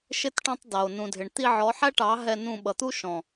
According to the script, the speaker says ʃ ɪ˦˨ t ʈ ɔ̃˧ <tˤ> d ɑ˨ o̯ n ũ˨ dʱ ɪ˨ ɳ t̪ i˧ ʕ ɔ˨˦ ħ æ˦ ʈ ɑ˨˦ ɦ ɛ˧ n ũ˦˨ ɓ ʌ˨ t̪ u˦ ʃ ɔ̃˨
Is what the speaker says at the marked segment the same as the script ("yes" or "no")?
yes